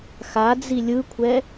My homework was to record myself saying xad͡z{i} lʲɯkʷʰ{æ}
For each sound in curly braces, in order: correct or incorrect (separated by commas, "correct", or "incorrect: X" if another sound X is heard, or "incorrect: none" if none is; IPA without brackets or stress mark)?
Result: correct, incorrect: ɛ